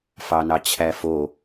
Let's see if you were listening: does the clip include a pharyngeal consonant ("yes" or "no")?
no